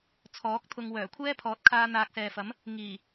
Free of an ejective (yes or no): yes